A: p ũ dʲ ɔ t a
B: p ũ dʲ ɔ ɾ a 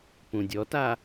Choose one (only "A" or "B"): A